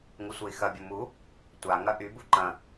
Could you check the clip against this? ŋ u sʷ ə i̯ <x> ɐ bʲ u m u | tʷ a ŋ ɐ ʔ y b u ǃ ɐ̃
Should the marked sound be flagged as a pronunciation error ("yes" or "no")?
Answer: no